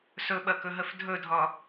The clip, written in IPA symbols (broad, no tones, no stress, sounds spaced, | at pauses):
s ɵ ɓ ɐ k ɵ ɦ ə f dʱ ɵ dʱ ɒ